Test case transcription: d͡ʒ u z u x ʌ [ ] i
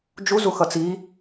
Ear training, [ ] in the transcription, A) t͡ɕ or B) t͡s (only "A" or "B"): B